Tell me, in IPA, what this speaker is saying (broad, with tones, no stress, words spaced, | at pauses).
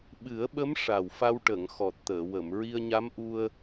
ɓɨ˨˩˦ə̯ɓə˧˥m ʂa˨˩wfa˧wʈə˨˩˨ŋ xɔ˨˩t̚t̪əː˨˩˨wə˨˩˨m ɹi˧ə̯ɲa˧˥mʔu˧ə̯